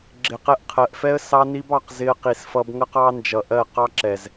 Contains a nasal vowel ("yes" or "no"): no